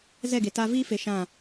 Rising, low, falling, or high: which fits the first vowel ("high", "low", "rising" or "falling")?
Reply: falling